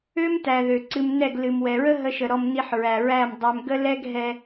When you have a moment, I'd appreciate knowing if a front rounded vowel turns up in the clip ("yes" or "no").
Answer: yes